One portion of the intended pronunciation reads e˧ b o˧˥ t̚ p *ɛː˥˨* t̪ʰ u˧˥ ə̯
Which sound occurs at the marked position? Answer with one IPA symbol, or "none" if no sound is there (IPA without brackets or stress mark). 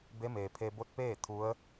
eː˥˨